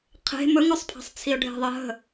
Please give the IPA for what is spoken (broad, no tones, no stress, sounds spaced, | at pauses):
qʰ e̤ m ɵ ŋ ɵ sˤ pʰ a̤ sˤ t͡sʰ i ʊ̯ ɖʱ e̤ ðˤ ɜ ɦ ə̤